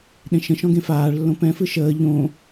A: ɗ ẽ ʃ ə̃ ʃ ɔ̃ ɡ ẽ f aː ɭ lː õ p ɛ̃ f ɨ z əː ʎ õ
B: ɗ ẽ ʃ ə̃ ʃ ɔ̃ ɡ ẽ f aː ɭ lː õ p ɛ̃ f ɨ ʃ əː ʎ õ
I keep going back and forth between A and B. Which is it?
B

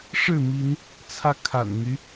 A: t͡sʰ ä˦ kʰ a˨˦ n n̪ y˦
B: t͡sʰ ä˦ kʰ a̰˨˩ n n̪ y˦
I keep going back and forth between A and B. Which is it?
B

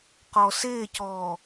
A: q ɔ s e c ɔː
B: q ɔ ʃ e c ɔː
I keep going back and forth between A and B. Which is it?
A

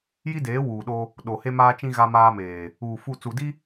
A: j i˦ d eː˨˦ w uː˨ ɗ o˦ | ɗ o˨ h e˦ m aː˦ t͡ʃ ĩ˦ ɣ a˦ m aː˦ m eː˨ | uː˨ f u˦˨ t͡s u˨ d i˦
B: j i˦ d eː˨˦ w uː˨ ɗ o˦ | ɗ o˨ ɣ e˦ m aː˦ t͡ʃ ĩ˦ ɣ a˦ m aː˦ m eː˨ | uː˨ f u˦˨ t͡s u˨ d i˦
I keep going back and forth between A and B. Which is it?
A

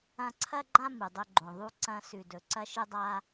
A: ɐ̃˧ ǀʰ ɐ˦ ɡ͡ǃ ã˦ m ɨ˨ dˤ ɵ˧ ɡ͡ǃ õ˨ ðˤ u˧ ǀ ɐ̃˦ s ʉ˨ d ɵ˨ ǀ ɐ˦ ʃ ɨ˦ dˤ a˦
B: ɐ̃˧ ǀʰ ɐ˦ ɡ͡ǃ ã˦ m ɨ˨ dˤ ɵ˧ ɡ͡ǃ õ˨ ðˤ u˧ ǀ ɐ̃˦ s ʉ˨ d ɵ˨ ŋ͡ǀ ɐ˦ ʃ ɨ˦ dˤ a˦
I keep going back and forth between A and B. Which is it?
A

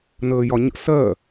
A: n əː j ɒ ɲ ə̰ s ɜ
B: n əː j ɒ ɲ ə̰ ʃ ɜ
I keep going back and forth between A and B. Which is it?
A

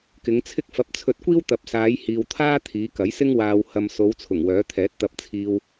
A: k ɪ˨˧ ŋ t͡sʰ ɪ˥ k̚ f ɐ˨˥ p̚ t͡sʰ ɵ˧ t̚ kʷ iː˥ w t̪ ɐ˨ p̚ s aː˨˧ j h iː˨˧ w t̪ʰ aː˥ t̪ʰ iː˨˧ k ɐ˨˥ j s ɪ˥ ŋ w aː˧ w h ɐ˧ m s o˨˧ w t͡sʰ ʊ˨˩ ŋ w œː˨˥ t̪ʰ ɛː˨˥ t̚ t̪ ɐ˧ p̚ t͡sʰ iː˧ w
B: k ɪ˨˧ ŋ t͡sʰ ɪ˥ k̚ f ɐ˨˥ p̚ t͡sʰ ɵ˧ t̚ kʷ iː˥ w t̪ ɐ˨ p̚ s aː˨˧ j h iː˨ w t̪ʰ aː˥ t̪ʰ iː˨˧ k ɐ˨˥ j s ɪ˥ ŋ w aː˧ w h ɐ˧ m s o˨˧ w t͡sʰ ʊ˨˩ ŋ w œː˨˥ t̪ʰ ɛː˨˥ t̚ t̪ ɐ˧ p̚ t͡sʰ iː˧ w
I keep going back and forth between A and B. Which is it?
B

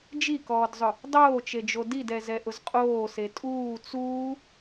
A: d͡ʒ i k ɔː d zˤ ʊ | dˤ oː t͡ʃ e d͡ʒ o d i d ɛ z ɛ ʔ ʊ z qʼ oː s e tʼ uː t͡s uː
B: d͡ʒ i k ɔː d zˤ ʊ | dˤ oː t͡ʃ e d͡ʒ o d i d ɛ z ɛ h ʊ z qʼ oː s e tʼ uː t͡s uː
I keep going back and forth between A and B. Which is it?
A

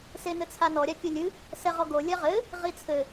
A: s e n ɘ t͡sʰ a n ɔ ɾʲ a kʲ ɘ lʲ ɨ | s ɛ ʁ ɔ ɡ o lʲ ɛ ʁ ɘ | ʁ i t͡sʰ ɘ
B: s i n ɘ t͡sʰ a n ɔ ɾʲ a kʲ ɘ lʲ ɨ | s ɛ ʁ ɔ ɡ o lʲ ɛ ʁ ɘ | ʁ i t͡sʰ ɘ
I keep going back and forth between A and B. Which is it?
A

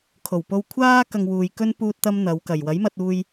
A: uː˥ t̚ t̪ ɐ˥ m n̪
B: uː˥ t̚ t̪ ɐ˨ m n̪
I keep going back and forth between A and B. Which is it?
A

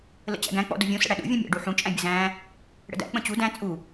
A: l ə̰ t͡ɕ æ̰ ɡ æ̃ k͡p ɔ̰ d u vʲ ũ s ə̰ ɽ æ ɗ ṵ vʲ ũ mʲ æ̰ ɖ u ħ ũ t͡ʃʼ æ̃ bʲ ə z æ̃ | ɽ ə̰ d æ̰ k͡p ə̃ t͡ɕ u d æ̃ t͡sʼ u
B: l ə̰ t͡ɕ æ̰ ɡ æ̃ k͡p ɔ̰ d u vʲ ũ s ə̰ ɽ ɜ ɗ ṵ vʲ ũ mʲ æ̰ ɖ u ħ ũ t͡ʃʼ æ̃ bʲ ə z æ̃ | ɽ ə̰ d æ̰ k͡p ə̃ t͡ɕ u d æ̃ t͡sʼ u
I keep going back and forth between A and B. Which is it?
A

